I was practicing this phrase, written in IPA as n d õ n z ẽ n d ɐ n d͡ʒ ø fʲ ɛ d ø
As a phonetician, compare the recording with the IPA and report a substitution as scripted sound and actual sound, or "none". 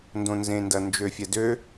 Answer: none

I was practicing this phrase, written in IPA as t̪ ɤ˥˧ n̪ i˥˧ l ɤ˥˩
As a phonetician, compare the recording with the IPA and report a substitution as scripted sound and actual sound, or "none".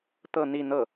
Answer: l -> n̪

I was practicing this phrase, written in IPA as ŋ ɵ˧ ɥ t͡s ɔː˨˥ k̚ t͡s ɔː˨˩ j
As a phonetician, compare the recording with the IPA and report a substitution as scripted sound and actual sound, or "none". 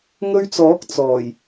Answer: none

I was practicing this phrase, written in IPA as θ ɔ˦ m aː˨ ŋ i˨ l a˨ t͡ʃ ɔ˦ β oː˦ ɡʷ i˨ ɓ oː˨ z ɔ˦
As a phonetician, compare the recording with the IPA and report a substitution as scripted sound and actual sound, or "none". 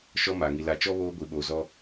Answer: θ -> ʃ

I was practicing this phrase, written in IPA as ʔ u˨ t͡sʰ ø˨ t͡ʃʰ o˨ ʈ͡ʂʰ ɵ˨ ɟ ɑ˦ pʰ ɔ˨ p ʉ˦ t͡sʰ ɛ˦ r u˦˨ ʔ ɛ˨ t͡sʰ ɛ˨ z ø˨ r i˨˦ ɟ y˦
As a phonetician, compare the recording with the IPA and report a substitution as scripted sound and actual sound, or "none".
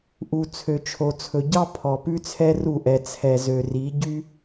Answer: ʈ͡ʂʰ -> t͡sʰ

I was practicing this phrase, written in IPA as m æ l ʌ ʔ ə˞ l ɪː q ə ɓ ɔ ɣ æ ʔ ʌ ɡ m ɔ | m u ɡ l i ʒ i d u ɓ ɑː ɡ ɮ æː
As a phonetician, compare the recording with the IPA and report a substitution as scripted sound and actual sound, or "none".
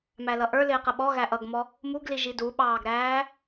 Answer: ɮ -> ɾ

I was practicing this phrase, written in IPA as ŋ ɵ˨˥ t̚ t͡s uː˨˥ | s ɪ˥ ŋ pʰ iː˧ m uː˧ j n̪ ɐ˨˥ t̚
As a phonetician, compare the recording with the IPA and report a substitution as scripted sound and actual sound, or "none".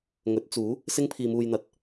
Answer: none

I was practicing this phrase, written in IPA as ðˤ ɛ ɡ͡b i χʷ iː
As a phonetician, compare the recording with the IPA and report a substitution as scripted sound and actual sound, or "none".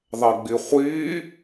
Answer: none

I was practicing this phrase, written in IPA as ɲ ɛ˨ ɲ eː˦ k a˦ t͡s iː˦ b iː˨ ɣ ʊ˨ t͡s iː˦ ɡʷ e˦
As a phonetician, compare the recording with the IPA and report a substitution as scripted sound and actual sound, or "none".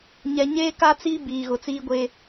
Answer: none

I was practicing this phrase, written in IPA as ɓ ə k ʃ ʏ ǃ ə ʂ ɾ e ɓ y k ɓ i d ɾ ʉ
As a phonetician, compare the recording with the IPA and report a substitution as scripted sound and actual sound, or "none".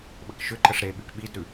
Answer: none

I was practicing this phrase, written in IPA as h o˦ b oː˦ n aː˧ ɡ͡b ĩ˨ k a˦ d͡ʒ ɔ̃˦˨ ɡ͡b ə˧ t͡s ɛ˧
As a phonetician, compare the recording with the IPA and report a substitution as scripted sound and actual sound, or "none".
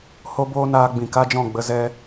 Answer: t͡s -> z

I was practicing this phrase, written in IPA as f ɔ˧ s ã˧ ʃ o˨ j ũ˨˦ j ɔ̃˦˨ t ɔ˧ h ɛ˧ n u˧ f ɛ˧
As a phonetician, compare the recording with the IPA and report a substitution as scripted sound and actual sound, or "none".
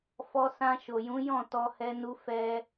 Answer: none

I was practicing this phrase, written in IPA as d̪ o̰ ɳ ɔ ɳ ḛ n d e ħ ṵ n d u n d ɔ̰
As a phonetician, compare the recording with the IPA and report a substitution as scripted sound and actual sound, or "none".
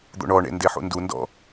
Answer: none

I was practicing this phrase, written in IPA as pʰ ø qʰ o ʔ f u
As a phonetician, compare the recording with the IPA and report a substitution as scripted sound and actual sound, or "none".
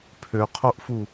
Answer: none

